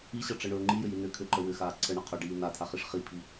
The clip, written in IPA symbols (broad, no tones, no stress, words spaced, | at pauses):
iɕʌʈ͡ʂəɳɵː ŋ͡ǃijʏji nʏ kʰʏǃə wʏxaː ǀʰəɳʌ qʰɵɖiː natʰaχiʂ χipʰi